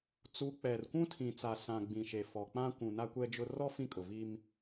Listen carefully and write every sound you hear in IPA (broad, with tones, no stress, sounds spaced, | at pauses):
t͡s u˨˦ k͡p ɛ˨ r kʷ ũ˦ tʰ ĩ˨ t͡s a˨ s ã˨ ɡ͡b ĩ˨ ʃ e˨ f ɔ˨ k͡p ã˦ kʷ ũ˨ n a˦ kʷ ɛ˦ d͡ʒ ʊ˦ r ɔ˦ f ĩ˦ kʼ ʊ˨ v i˦ m